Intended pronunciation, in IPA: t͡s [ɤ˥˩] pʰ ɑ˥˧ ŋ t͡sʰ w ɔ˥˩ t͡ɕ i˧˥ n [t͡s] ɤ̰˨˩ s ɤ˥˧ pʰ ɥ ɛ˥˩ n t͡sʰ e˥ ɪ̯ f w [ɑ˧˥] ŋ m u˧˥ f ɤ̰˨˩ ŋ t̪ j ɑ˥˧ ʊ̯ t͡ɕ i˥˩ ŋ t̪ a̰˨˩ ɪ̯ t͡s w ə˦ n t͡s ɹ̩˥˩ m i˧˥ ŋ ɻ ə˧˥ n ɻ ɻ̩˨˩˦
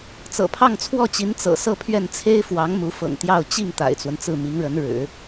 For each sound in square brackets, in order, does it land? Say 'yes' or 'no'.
no, yes, yes

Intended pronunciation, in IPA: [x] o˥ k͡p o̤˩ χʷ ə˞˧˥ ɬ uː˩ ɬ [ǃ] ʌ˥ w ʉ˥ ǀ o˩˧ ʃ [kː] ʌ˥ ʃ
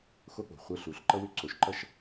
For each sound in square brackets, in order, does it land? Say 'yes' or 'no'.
yes, yes, no

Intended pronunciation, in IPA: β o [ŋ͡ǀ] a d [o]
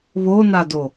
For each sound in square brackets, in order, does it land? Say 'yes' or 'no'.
no, yes

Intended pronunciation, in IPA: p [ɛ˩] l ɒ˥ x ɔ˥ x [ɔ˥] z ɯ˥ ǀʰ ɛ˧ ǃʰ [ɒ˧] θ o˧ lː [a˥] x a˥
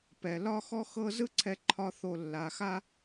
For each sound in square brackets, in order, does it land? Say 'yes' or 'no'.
yes, no, yes, no

